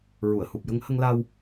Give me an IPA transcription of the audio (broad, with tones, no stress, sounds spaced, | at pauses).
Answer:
ɹ u˨˩˨ ə̯ h u˨˩ p̚ j ə˧ ŋ h ə˧ ŋ l a˧ w